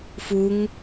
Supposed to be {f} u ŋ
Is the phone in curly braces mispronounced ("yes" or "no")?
no